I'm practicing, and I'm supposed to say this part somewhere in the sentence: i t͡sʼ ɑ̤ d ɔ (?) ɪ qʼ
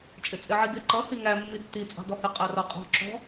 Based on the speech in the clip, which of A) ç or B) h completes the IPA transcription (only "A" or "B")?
B